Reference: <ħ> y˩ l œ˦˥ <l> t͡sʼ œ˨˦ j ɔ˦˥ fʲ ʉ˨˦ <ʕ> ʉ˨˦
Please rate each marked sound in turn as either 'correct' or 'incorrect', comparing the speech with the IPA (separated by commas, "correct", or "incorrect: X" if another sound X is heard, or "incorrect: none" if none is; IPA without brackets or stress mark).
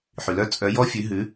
correct, incorrect: none, incorrect: ɦ